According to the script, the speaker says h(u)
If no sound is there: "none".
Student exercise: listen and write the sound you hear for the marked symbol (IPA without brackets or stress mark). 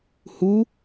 u